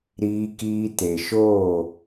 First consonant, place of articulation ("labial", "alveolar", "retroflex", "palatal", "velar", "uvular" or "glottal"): alveolar